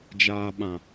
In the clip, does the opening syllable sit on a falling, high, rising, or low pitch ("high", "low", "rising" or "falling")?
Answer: low